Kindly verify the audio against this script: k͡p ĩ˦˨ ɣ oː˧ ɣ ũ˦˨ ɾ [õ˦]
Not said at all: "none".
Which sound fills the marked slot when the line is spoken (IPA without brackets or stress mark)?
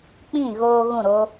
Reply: o˦